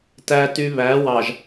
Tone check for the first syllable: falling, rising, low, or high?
high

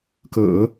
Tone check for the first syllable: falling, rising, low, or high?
low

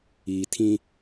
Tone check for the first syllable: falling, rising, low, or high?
low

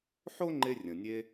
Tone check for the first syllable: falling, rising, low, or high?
high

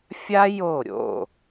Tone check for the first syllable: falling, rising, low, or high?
high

